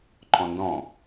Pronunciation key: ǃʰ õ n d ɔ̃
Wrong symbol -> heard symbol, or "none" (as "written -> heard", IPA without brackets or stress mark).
õ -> ɔ̃